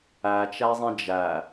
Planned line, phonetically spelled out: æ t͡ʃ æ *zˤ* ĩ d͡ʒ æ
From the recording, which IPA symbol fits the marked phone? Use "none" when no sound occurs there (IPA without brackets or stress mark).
zˤ